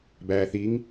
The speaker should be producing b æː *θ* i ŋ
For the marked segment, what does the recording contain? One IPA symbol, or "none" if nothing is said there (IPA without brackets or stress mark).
θ